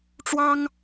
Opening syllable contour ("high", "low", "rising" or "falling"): high